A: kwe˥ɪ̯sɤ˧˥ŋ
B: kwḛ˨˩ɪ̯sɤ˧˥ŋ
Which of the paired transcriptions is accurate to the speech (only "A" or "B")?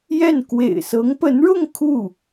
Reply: B